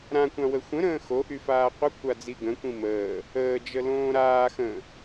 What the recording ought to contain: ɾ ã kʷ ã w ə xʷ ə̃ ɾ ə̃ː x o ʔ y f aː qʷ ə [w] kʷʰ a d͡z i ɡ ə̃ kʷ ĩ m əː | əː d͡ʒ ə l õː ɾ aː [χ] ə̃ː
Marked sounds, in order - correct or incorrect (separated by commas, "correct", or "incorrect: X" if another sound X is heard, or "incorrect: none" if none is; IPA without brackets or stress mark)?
incorrect: none, incorrect: x